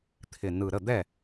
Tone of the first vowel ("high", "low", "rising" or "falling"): low